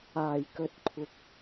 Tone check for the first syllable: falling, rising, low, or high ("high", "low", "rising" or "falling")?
low